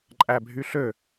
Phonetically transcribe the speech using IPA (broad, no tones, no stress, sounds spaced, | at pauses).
ǃʼ æ bʱ y ɬ ø